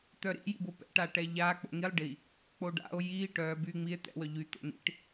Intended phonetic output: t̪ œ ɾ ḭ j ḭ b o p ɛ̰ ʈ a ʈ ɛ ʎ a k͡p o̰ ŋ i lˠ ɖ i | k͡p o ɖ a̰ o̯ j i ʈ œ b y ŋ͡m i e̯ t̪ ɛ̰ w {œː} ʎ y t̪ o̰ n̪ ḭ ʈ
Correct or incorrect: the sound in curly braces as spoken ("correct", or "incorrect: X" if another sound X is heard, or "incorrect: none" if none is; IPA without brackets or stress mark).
incorrect: œ